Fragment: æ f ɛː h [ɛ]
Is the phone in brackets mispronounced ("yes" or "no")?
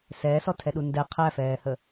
yes